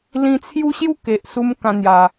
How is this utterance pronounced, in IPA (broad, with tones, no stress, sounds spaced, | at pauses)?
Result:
l ĩ˧ t͡sʰ j u˦ ɕ j u˥˧ k e˨ ʔ s u˧ m k ã˧ n̪ j a˨˩